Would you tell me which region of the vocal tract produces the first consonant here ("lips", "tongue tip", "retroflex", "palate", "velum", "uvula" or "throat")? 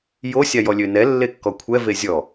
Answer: palate